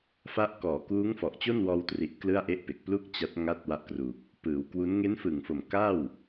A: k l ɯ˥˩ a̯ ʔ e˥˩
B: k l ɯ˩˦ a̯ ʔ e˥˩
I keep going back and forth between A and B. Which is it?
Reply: A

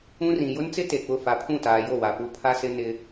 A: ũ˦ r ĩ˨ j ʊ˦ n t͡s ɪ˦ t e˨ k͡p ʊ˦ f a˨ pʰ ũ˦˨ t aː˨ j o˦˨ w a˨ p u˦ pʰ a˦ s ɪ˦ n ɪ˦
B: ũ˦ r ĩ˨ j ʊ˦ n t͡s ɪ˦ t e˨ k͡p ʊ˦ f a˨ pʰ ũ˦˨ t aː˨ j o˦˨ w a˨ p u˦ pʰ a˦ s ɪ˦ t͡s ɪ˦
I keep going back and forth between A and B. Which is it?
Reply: A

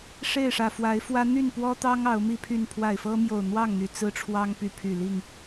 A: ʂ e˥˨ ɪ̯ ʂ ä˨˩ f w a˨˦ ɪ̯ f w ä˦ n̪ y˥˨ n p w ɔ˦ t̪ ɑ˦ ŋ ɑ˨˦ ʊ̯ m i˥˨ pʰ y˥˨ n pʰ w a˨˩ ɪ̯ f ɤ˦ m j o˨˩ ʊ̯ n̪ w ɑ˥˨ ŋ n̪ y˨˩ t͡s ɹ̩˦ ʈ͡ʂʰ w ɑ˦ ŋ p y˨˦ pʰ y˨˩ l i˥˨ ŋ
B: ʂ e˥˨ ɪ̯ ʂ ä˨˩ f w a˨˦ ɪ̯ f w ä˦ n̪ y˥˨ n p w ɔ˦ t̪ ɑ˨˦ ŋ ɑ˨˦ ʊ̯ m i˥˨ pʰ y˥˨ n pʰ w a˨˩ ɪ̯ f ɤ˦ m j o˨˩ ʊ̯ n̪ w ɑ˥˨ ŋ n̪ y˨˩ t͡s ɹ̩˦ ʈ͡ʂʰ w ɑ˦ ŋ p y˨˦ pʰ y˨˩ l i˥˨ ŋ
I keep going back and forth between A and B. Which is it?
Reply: A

